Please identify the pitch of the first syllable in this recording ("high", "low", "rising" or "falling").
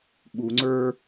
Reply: low